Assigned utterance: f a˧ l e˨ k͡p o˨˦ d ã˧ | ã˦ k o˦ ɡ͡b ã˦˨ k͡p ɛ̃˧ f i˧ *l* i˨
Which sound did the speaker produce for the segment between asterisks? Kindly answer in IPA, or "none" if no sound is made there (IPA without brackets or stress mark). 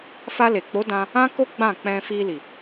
l